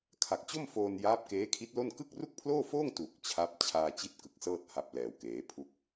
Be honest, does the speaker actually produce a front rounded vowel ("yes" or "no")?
no